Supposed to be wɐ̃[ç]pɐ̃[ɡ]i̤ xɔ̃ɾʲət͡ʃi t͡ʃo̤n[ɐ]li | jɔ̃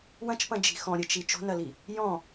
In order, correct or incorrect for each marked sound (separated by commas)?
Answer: incorrect, incorrect, correct